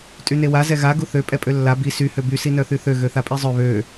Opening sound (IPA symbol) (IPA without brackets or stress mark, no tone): tʼ